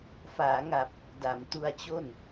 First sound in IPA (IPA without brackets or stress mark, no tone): f